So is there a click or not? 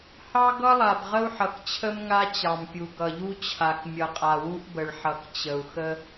no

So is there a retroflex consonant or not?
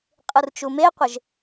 no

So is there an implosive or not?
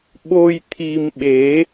yes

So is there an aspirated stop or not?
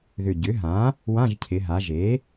yes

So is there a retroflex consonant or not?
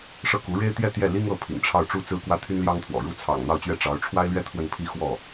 yes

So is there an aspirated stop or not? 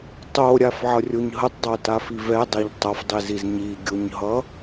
no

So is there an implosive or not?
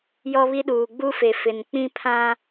yes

